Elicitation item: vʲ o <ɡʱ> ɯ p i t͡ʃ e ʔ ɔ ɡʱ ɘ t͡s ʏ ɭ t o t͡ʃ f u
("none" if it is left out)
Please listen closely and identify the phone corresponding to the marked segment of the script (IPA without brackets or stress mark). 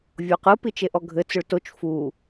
q